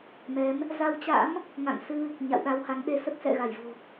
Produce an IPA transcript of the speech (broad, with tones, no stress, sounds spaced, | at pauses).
m ɛ˨˦ m | z a˧ w t͡ɕ a̰˧˥ m | ŋ a̰˧˨ ŋ s ɨ˧ | ɲ a̰˧˨ w ɗ a˧ w h a˨˦ ŋ ɗ e˧ s ə˦˥ t̚ s ɛ̰˧˨ ɣ a˧˩ j v o̤˨˩